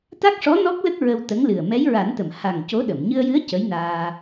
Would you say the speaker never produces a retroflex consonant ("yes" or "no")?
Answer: no